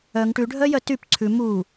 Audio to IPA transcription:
œ ŋ ʈ ʉ ɖʱ œ j œ t y p ǀʰ ʉ m u

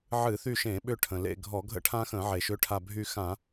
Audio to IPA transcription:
ʕ ɨ˧˩˧ θ y˦˨ ʃ ẽ˧˩˧ ɓ ʏ˦˨ ʈʰ ə̃˩ l ḛ˦˨ ɡʱ ɔ˧˩˧ ɡʱ ə̰˦ ʈʰ ã˦ x ə̃˧˩˧ ʕ e˩ ʃ ʏ˦ ʈʰ a˦˨ bʱ y˦˨ x ã˧˩˧

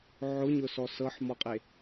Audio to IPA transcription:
ʕ ʊ ɲ ʊ s ɔ s ɤ ħ m ɔ qʼ e

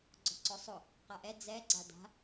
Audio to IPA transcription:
ɡ͡ǀ ɔ̤ ǀ ɔ sˤ ʊ | q a ʔ ɛ d͡z ɛ ɡ͡ǀ a d a̤

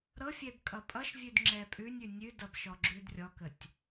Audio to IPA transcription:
ɾ ɤ fʲ ɛ b kʼ ʌ pʼ ʌ ʃ vʲ ʉ d ŋ͡ǁ ɛ pʼ ʉ nʲ ʉ nʲ ʉ d ʌ b ʃ ɔ ɡ͡ǁ ʉ d rʲ ɔ k ə tʲ

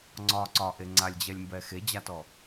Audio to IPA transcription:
ŋ͡ǀ ɒ ǀ ɒ ʔ e ŋ͡ǀ a lʲ d͡ʑ ɛ lʲ m b ɛ x e d͡ʑ a t ɔ

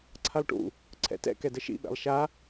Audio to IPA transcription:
ǀʰ a lˠ ʈ ṵ | ǀʰ ɛ̰ t ɛ̰ k ɛ d ə ʃ ḭ ɓ ɛ̰ lˠ ʃ a

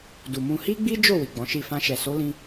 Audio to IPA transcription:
d u˨ m ũ˧ h i˦ ɡ͡b i˦ d͡ʒ o˦˨ w i˨ ɡ͡b ɔ̃˨˦ ʃ i˦˨ f ã˧ ʃ ɛ˨ s o˨˦ l ĩ˧

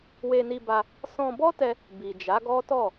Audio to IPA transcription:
w e˧ n i˧ b a˧ | s ɔ̃˧ b ɔ˦ t ɛ˧ | b i˨ d͡ʒ a˨˦ ɡ ɔ˦ t ɔ˦˨

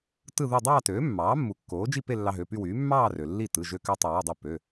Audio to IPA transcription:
t ɯ˥˧ ð u˥˧ dˤ ɑː˥˧ t øː˩˥ mː ɑː˩˥ mː u˩˥ kː oː˩˥ d͡ʒ i˥˧ p e˥˧ lː ɑ˧ ɦ ø˩˧˩ p y˥˧ w yː˩˥ mː ɑː˥˧ r ø˩ lː i˥˩ t ɯ˩˧˩ ʒ ø˧ k ø˧ tˤ i˩ w ɯ˥˩ dˤ e˥˩ p ø˩˧˩

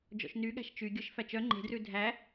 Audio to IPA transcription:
d͡ʒ ɔ̰ ʃ n y ɠ æ̤ ʃ t͡ʃ y ɡʲ œ ʃ f æ t͡ʃ œ ŋ͡ǃ e̤ d r ʉ dʱ æ

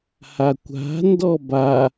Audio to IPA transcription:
h a kʷ a̤ n d ɔ b a

